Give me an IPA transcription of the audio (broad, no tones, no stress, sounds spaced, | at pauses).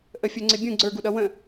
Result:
ʔ ə fʲ ə˞ ŋ͡ǀ ɪ bʲ ũ ɡ͡ǀ ə˞ ɡ u ɗ ʌ w ə̃